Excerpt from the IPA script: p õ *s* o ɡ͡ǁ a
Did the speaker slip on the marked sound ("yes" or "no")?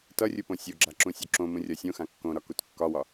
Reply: yes